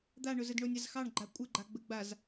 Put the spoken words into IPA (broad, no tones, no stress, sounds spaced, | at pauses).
d̪ a ɳ ʊ z ə d ɳ o nʲ a z x ɑ ɳ ɡ͡ǃ a kʷʼ ə ɡ͡ǃ a ɡ͡b ə ɡ͡b a z